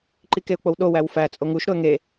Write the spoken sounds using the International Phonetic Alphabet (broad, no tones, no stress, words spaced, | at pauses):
ǃikeʊ̯k͡powɗo wæwfæ t͡sʼoŋuʃ ɾoə̯ŋe